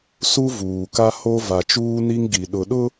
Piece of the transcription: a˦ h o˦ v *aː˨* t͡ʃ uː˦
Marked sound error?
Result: yes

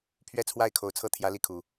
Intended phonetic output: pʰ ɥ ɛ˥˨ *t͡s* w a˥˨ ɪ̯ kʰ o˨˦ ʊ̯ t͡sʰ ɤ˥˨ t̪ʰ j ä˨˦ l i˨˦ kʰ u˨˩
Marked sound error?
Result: yes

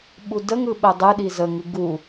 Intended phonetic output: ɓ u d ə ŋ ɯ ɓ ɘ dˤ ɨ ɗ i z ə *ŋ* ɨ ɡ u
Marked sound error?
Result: no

